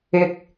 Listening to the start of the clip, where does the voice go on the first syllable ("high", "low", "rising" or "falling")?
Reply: low